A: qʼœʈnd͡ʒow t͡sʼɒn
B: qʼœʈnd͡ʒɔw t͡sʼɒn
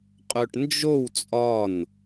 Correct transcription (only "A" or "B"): A